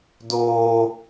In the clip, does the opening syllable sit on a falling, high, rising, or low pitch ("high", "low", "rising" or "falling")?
low